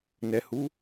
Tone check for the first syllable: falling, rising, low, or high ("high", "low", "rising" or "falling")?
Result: low